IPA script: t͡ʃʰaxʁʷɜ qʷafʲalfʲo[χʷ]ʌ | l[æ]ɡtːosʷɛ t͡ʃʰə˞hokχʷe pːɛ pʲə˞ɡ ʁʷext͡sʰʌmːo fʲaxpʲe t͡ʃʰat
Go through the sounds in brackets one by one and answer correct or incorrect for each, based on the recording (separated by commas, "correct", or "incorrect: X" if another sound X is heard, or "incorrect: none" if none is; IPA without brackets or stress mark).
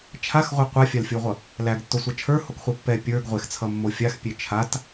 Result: incorrect: ʁʷ, correct